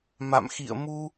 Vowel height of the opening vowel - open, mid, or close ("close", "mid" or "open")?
open